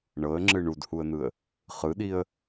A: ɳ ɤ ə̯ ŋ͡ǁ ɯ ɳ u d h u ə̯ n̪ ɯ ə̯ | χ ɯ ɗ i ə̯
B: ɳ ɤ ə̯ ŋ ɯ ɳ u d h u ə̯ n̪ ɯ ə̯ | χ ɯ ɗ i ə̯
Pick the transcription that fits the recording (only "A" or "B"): A